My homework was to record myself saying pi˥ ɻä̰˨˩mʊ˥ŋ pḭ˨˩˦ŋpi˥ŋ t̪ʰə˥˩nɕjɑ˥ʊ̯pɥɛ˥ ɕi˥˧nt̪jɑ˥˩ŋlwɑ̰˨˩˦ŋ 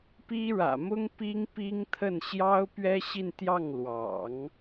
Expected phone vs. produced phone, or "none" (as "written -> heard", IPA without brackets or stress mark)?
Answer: ḭ˨˩˦ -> i˥